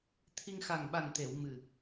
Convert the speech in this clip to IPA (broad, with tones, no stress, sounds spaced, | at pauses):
t̪ʰ i˧ ŋ x a˨˩ ŋ ɓ a˨˩ n t̪ e˨˩˨ w m ɨ˨˩